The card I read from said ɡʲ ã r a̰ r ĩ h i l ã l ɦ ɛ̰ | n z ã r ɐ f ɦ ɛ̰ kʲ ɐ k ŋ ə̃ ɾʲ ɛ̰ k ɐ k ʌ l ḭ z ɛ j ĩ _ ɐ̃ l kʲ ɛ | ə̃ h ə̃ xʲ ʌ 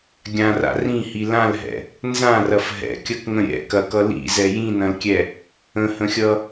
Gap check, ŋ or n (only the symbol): n